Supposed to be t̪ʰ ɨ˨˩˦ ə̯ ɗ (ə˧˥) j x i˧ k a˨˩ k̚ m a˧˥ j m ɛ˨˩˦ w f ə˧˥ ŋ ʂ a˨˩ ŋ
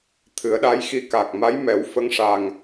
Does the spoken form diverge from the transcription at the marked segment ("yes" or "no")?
yes